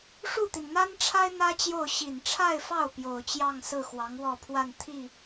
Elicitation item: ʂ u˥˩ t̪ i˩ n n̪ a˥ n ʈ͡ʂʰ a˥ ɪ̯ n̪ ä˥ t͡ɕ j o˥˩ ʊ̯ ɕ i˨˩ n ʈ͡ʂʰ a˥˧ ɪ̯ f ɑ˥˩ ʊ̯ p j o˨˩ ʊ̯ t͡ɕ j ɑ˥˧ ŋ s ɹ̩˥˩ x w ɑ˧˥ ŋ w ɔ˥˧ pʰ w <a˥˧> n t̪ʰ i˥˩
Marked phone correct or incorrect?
correct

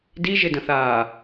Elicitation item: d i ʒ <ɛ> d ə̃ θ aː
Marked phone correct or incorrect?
incorrect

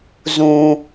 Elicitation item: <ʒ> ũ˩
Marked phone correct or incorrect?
incorrect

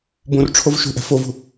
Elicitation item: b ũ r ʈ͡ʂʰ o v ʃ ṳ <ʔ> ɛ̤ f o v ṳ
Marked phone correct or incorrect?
correct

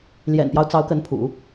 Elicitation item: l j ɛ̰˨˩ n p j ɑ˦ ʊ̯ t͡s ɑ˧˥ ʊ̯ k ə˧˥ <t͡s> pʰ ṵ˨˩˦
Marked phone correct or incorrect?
incorrect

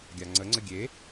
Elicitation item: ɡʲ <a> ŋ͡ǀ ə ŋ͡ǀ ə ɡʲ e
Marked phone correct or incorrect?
correct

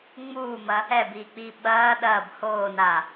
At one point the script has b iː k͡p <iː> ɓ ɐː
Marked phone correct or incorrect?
correct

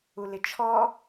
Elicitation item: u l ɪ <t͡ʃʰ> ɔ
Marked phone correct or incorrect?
correct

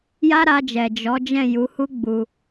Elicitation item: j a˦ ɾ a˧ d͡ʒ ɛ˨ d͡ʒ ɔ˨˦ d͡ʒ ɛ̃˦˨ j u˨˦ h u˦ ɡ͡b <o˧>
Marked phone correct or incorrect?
incorrect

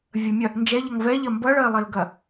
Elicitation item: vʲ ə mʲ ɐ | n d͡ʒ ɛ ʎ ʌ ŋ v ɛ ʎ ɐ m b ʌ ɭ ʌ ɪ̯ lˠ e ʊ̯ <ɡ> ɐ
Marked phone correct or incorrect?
correct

